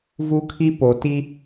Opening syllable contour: high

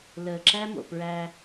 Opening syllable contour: low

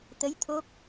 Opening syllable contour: rising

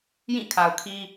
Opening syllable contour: falling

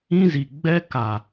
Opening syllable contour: high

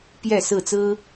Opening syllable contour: falling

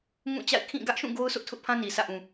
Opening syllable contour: falling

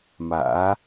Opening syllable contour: rising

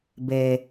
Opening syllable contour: low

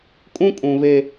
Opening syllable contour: high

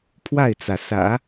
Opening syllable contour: falling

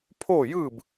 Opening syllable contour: falling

